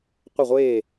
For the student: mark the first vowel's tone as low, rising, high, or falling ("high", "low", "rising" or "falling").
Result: falling